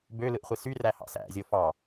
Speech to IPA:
b ø l ɯ ʔ χʷ i s y r æ h ɑ̰ s æ̰ zʲ o f ɑ

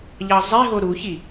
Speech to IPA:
ʎ ɑ zˤ e ɦ o ɾ u ç i

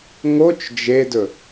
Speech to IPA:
ŋ o t͡ʃ d͡ʒ e d ɵ

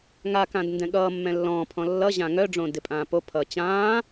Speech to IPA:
ŋ a k ã d n d ɛ̃ ɠ ʌː mː ɛ̃ lː ɔ̃ː pʰ ɔ̃ lː ʌ ʑ ã ŋ œ ɖ͡ʐ õ d ɪ pʼ ãː p o pʰ ʌː t͡ɕ ãː

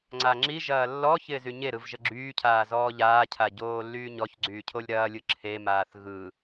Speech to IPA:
ŋ͡ǀ a ŋ͡ǁ i ʒ ɐː lː ɔ ç ɪː z y ɲ e ɾ ɯ v ʒ ə ɡ͡ǁ yː cʰ aː z ɔː ʎ aː cʰ a ɟ oː lː yː ɲ ɔ ç ɡ͡ǀ yː cʰ o lʲ ɾ ɐː lʲ ɯ ǁʰ e m aː θ ɣ ɯ

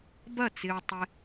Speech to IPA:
b ɐ˥˨ t͡s ɪ˧ ɹ tˤ ɪ˧

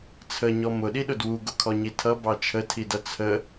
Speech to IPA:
t͡sʰ ə ɲ ɔ m ʊ ɗ i ɗ ʊ d w u ɡ ʊ kʰ ɔ ɲ i tʰ ʌ b ɑ t͡ʃʰ ə tʰ i d ʌ t͡sʰ ə

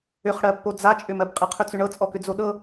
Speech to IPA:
ʏ χ ɽ ɜ pː o d͡z a t͡ʃʼ ʏ m ɜ b qʼ ɨ qʰ ʏ t͡s ʏ ɳ ɤ t͡sʼ ɔ k ʏ d͡z o ɗ ɤ

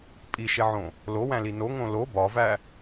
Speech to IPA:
pʼ i ʃ e ʕ õ | l o w æ̃ l i n o ŋ õ l o b ɒ v æ

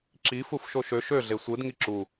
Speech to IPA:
ǁ i f u f ʃ o ʃ ø ʃ ø ɮ e sʷ ɯ d ŋ i ǁ u

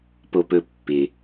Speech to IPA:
p o˧ p ɵ˧ pː ɪ˩

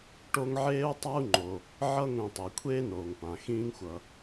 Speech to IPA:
ʈ o˦ ŋ ʕ eː˥ u̯ tˤ a˥ u̯ ŋ͡ǃ o˩ | ʕ ʌ˥ ŋʷ ĩ˨ tˤ i˩ kʷʰ eː˥ n oː˩ ŋ p ã˩ x ĩː˦ ŋ xʷ ʌ˨

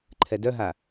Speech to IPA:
ǃʰ ɛ d œ ɦ a

